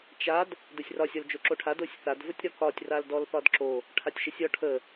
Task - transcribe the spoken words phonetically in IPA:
t͡ʃ a d | d ə sʲ r ɒ sʲ ɒ l d͡ʒ o ǁ o ʈʰ a d o sʲ θ a d v ə tʲ ɾ ɒ k ɒ tʲ r a l d ɔ l θ ɒ d ǁ o | ʈʰ a tʲ ʃ ə sʲ ɒ ʈʰ ə

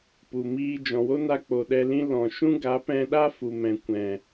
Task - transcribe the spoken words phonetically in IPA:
p u˨ m iː˦ d͡ʒ ɔ̃˨ w o˦ n a˧ k͡p o˨ ɗ ɛ˧ l ĩ˦ l ɔ̃˨ ʃ ũ˦ ɡ a˨˦ p ɛ̃˧ ɗ a˦ f u˨ m ɛ̃˨ kʷ ɛ̃˨

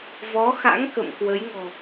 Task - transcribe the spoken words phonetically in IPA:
v ɔ˨˦ x a̰˧˥ ŋ k ə̰˧˨ m k w ə˨˦ j ŋ ɔ̤˨˩

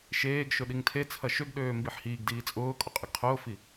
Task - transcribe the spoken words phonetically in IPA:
ʃ eː ɡ ʃ ʊ ɗ i ŋ tʰ e t͡sʰ ɐ ʃ ø ɡ ɗ øː m b i ħ h iː ɡ d iː t͡sʼ ʊː kʼ ʊ qʼ ɪ ɡ qʰ ʊː f i

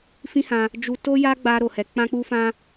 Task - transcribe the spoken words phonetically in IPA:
f ĩ˦ h ã˧ | d͡ʒ u˧ t o˦ j a˦ ɡ͡b a˧ ɾ o˨ h ɛ˨ k͡p ã˧ k͡p u˧ f ã˧

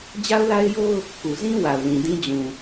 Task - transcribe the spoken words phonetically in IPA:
d͡ʑ a˦ ʊ̯ l a˦ ɪ̯ j o˦ ʊ̯ | k u˨ z ĩ˦ w a˨ ʊ̯ l ĩ˨ d ĩ˦ d͡ʑ ũ˨

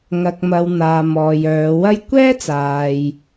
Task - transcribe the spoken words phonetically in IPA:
ŋ ɐ˨ k̚ m ɐ˨ w n̪ aː˨ m ɔː˨ j œː˨˧ w ɐ˥ j kʷ ɛː˥ t͡s aː˨ j

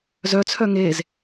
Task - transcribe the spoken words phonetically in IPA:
z œ t͡sʰ œ ŋ e z

